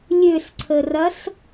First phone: lʲ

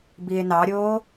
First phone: b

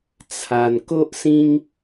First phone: t͡sʰ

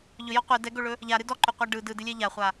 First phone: ʎ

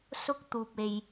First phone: s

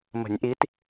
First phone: m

